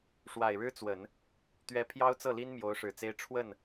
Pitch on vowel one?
low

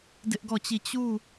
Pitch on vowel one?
high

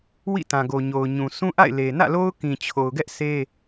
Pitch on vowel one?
falling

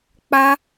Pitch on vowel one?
high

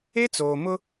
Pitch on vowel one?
high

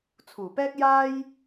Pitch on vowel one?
low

